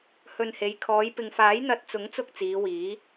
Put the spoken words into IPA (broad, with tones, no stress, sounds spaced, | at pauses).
h ɵ˨ n h e˨˧ j kʰ ɔː˨˧ j p ɪ˨ ŋ f aː˨˥ j n̪ ɐ˨ t̚ t͡s ʊ˨˥ ŋ t͡s ʊ˧ k̚ t͡s iː˨˧ w iː˨˥